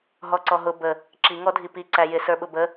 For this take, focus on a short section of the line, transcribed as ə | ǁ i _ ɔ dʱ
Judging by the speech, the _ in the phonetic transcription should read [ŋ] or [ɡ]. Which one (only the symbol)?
ŋ